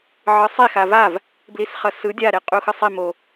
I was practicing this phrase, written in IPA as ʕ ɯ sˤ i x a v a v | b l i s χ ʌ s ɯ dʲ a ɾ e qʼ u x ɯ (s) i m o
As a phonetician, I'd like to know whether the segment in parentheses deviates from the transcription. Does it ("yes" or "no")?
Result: yes